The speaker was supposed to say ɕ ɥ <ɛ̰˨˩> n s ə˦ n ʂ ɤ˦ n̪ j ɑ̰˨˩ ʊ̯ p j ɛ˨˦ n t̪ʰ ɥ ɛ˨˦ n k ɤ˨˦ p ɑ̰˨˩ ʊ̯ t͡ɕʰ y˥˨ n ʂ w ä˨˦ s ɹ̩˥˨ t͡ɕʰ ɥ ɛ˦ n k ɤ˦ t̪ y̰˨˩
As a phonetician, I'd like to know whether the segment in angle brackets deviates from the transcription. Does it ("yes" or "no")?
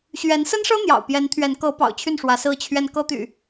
yes